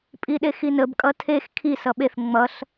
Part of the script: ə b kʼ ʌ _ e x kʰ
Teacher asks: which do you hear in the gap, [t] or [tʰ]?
tʰ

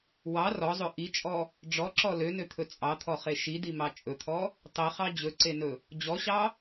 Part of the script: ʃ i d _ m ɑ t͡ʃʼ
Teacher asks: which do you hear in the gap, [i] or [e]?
i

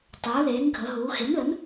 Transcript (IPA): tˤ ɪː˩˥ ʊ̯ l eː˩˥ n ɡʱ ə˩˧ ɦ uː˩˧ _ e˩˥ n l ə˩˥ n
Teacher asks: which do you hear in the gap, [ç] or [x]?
x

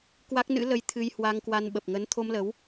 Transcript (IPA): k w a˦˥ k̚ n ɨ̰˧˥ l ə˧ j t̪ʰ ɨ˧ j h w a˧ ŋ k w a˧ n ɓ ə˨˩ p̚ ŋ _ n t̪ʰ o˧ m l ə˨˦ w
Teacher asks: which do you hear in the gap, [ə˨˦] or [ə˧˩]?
ə˨˦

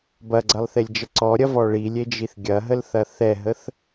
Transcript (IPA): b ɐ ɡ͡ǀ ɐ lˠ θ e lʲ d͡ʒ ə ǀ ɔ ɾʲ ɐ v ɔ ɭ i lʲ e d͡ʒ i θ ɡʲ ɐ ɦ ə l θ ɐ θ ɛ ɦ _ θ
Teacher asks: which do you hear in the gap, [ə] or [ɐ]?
ə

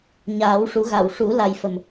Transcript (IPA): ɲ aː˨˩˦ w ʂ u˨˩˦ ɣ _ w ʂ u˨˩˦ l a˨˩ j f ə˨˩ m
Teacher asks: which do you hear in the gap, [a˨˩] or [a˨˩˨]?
a˨˩˨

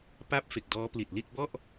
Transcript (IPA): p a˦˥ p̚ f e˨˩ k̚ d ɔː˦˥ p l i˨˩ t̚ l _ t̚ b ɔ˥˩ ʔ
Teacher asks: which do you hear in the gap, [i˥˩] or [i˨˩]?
i˥˩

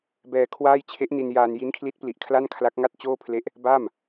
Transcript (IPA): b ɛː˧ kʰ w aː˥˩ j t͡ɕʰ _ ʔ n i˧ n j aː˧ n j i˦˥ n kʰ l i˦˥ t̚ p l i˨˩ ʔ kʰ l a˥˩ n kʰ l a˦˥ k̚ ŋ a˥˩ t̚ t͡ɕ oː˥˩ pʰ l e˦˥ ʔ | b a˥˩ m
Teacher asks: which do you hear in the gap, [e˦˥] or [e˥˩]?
e˦˥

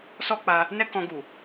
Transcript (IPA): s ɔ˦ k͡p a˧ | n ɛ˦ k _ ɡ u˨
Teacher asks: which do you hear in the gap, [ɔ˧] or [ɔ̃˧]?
ɔ̃˧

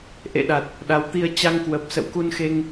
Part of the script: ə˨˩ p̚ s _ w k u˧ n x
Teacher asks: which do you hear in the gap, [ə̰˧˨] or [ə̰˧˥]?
ə̰˧˨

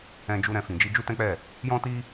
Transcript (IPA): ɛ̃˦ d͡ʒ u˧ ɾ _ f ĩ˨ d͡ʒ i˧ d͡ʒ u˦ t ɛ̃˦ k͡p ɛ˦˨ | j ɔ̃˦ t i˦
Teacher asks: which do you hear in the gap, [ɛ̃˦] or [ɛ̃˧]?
ɛ̃˧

